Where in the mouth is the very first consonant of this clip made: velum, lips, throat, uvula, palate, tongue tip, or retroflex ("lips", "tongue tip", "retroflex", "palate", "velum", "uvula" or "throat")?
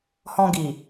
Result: throat